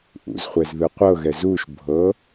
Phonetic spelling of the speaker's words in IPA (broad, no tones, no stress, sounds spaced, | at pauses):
ʔ ṵ z χʷ ɛ z ð ɯ qʷ ɤ ɣ ɛ z u ʃ bʱ ɤ